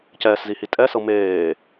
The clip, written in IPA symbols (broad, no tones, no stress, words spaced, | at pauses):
cɛːszihi tʼɛsɤ meː